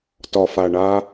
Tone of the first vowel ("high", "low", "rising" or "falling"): low